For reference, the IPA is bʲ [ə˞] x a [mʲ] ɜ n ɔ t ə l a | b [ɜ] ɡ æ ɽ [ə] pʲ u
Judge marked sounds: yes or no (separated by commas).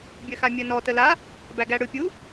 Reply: no, yes, no, no